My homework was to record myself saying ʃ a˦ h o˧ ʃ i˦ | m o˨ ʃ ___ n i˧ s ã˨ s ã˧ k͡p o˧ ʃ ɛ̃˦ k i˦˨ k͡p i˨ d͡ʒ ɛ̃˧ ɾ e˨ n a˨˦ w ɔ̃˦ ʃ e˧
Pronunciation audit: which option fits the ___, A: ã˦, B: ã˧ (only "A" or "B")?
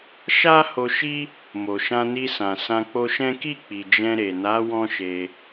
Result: B